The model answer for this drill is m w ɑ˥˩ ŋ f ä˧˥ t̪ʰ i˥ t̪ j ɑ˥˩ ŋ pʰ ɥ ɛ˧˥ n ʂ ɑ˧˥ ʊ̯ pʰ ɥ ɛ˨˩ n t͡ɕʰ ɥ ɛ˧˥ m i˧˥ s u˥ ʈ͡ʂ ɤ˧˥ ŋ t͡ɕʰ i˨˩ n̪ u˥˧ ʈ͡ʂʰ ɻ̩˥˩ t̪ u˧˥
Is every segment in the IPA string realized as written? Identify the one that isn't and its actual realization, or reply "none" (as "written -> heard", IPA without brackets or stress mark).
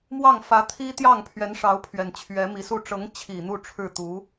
none